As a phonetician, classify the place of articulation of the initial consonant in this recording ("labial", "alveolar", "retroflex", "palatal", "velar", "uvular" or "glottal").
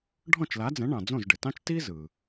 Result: retroflex